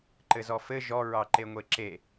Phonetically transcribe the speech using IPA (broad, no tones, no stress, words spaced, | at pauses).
ǃɘzɔfɘ ʒɔ ɹɑǃeŋʷeǁe